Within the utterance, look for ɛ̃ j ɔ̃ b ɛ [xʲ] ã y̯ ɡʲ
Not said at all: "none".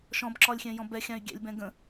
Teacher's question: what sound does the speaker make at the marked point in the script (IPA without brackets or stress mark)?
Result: xʲ